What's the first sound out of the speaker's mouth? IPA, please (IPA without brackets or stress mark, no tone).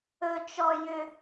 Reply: ɵ